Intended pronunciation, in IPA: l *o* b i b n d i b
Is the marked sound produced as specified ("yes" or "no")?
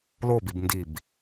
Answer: yes